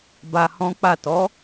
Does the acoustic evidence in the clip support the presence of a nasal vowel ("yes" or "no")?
yes